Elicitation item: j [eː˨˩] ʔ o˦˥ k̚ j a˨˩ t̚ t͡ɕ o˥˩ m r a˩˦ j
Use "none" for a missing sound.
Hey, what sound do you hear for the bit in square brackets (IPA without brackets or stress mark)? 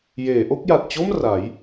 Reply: eː˩˦